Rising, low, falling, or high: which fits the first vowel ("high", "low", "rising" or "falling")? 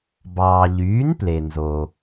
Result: low